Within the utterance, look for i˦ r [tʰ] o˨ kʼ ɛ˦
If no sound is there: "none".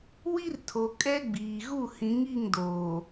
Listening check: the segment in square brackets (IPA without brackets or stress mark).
tʰ